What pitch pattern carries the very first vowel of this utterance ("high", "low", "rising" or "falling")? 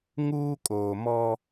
high